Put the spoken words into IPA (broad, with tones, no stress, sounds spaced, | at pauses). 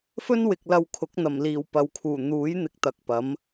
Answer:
f ɵ˥ n w ɪ˨ k̚ l ɐ˧ w kʰ ʊ˨˥ k̚ n̪ ɐ˨˩ m l iː˨˩ w p ɐ˨ w kʰ uː˨˩ n̪ uː˨˥ j n̪ ɪ˧ k̚ t̪ ɐ˨ k̚ p ɐ˨˥ m